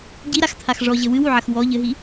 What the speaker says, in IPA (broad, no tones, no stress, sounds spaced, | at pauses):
ɟ i ɾ a x t̪ʰ a x ʐ ɔ ʑ ɘ w ɨ w u ʕ ɐ x w ɔ ʎ ɘ ɦ i